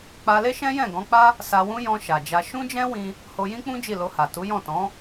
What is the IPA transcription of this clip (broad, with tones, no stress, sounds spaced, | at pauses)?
k͡p a˧ l e˦ ʃ ɛ̃˦ j ɛ̃˦˨ ɡ ɔ̃˨˦ k͡p a˦ | s a˧ w ũ˦ j ɔ̃˧ ʃ a˨ d͡ʒ a˧ ʃ ũ˦ d͡ʒ ɛ̃˦ w ĩ˧ | h o˧ j ĩ˦ k͡p ũ˦ d͡ʒ i˦˨ l o˧ h a˨ t u˨˦ j ɔ̃˦˨ t ɔ̃˨˦